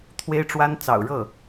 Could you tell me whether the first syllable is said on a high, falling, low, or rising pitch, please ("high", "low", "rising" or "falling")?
high